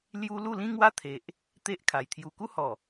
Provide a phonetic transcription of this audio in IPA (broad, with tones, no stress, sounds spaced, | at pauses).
l j u˦ l u˥˧ l ĩ˦ ŋ w a˦ t̪ʰ e˨ ʔ | t̪ e˦ ʔ kʰ a˨˩ j t̪ʰ j u˧ k u˦ h ɔ˨˩